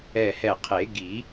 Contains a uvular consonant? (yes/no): yes